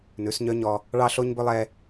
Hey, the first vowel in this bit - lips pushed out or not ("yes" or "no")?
yes